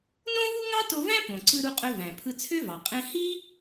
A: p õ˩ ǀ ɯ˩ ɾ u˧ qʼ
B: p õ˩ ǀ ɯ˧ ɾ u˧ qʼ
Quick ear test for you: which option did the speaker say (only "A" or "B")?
B